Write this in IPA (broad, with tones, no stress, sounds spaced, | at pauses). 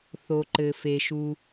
θ o˩ ǃ ɘ˩ f e˩ ʃ u˩